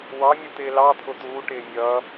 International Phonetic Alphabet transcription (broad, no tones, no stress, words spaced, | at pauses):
wɑ mʲut̪ɪːlɑt̪ʰʊ t̪uːʈɪː mʲʌ